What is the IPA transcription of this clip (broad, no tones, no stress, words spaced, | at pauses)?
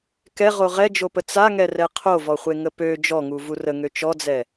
kɛʁo ʁɛd͡ʒopə t͡saŋɛrɛ qʰovɔχʷeŋə pø d͡ʒɔŋuvu rəŋø t͡ʃɔd͡zɛ